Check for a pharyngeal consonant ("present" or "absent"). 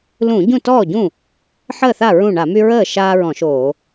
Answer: present